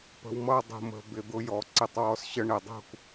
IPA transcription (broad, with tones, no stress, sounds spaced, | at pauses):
p ə̤˨ w m ʌ˦˨ dˤ ṳ˨ m ə̤˨ b ɪ˨ d̪ ʊ˧ j ɔ˨ ǀ ɪ˧ tˤ w ɔ˦ s ɕ ə˦ ɳ ɪ˨ dˤ ṳ˦˨ k